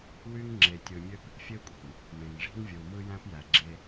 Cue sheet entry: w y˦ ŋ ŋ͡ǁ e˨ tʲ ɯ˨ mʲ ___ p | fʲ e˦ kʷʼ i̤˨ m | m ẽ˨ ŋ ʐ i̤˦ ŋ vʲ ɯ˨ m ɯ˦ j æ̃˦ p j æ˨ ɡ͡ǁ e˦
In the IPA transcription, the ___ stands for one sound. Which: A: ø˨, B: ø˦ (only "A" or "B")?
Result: B